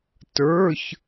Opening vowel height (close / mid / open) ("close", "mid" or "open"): mid